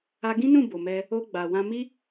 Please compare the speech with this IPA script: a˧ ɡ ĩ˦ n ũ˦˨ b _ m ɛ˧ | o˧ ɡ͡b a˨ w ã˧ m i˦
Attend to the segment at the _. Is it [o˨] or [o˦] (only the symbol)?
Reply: o˨